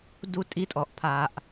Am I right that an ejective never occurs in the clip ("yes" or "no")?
no